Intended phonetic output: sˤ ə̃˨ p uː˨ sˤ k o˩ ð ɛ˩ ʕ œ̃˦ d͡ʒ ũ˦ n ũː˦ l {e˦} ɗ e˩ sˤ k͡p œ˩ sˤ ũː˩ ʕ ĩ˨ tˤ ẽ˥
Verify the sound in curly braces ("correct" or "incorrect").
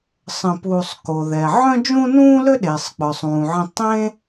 incorrect